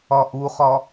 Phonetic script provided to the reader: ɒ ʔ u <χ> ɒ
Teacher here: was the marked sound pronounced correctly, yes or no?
yes